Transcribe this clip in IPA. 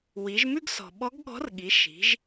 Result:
w i˩˧ ʒ m ʉ˥ ɡ s ɔ̤˩ ɓ ɔ˧˥ ɡ ɠ ɔ̤˧˥ r ɠ i˩˧ ʃ i̤˩˧ ʒ

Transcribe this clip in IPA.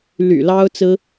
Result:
l y̰˨˩ l ɑ˥ ʊ̯ t͡s ɹ̩˥

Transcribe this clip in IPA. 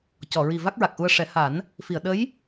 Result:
c ɔ˨˩˨ ɹ i˨˩ v a˦˥ k̚ ɹ a˨˩ k̚ ʔ u˧ ə̯ ʂ ɛ˨˩˦ h a˨˩˦ n | f i˨˩˨ ə̯ ɗ ə˧˥ j

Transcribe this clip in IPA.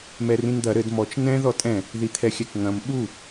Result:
m ɛ r ĩ n d̪ ɐ ɾ ɘ d m ɔ t͡ʃ n ɛ̃ ð ɔ tʼ ɛ̃ | ð i t̪ʰ ɛ xʲ ɛ k ŋ ɐ̃ m ɓ u

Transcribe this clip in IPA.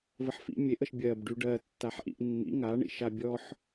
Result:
v ə ħ f ḭ mʲ e ʔ ə ʃ bʲ ɜ b ɖ y ɖ ɜ tː a ħ ʔ ḭ ʔ nː ḭ ŋ a ɳ ḭ ʃ a bʲ ɔ ħ

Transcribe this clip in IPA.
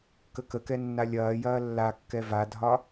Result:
k ə k ə k ɛ nː a lʲ ɐː j ɐː lː a kː ɛ v a dʱ ɒ

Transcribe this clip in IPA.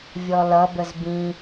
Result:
vʲ ɔ l ʌ b ə z b ĩ

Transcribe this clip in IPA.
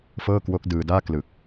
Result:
f ɤː˥˩ k w o˦˥ k̚ d ɯː˧ d aː˥˩ k l ɯ˨˩ k̚

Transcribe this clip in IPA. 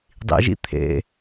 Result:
dˤ ḭ ʒ ḭ t̪ʰ ḛ

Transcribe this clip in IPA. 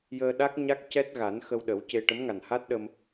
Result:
j əː˧ ɗ a˦˥ k̚ ɲ a˦˥ k̚ c ɛ˦˥ t̚ ɣ a˨˩˦ n x ə˧ w ɗ ə˨˩˦ w c e˧ ʈ ə˧˥ m ŋ a˨˩ n h a˦˥ t̚ ɗ ə˧ m

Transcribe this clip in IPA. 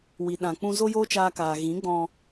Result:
w i˨ ɗ ã˨ k͡p ũ˧ z o˦ j oː˦ t͡ʃ aː˧ k aː˨ ɣ ĩ˨˦ ɡ͡b ɔ̃˧

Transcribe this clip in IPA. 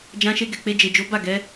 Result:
d͡ʒ ã˧ ʃ e˧ ɡ ɛ˨ k͡p e˧ d͡ʒ e˨ d͡ʒ o˨˦ b a˦˨ ɡ ɛ˨˦

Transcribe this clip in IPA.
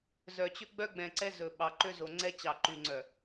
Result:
z œ˨ t͡ɕ ɵ˦ ɡ͡b œ˦ ɡ͡b ɛ̃˨ ǀ ɛ˦ z ɵ˨ ɓ ɑ˨ ǃ ø˦ z o˨ ŋ͡ǀ ɛ˦ t͡ɕ ɑ˨ ǃ y˨ ŋ͡ǀ œ˨

